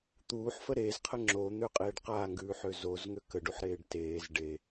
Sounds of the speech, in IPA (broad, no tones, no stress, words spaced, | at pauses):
t̪uːħfə ɾeːzqʰə ŋ͡ǁon̪øqʼeːɖ qaːŋɡʉːħø zozŋø kəɖuħɾeːɖ teːz ɖe